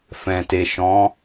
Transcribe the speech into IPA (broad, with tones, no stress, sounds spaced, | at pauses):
f ɛ̃˨ t e˨ ʃ ɔ̃˨˦